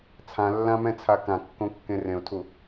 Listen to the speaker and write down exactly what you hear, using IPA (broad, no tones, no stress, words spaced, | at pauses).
t͡sʰãlːãmɛ̃t͡sʰa kãkːõkːẽ rẽʊ̯tʰu